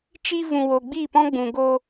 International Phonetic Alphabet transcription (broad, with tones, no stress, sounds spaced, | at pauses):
t͡ʃ i˦ v ũ˧ w o˧ ɡ͡b i˦˨ p ɔ̃˦ ɡ͡b ũ˨ ɡ o˧